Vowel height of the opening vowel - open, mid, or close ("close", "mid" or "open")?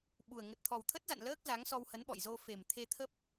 close